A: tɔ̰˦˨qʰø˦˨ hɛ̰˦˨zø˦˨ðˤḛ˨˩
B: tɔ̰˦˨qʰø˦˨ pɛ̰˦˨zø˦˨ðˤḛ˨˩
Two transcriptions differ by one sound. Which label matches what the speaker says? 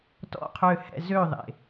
A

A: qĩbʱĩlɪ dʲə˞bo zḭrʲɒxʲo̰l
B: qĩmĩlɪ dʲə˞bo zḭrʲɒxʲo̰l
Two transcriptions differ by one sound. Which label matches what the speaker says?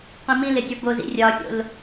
B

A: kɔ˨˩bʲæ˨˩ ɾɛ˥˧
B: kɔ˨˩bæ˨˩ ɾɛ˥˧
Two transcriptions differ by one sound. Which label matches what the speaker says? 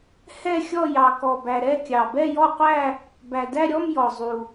B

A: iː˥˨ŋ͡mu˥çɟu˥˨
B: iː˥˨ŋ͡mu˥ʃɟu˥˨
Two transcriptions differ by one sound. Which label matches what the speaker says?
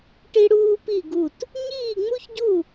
A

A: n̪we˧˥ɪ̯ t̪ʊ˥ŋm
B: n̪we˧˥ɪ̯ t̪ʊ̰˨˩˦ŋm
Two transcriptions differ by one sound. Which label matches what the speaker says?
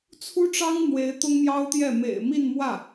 A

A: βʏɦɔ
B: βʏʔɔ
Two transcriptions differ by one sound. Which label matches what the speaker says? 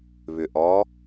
B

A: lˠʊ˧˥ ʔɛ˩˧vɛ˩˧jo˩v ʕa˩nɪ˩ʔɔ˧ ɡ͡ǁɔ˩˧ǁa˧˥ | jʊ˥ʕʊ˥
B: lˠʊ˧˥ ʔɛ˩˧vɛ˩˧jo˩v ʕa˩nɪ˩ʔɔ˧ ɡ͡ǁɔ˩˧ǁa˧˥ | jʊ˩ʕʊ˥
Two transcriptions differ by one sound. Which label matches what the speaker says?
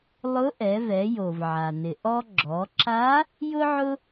A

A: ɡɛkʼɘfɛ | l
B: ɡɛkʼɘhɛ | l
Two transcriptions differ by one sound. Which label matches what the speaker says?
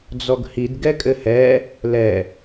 B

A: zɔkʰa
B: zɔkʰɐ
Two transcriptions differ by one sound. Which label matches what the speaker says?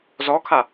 A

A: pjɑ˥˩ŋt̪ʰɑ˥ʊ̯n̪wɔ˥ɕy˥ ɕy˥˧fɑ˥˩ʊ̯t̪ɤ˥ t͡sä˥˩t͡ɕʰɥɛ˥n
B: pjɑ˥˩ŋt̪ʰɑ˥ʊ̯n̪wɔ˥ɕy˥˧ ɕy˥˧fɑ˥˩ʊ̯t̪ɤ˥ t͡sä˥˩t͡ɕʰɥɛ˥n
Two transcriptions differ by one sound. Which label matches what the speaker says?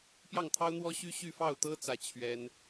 A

